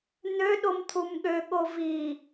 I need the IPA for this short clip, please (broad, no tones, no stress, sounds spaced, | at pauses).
n̪ ø ɗ o m t̪ʰ u m ɠ ø ɠ o v i